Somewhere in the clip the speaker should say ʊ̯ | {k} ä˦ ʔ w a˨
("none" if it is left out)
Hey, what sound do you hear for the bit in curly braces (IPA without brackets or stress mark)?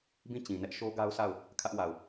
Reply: kʰ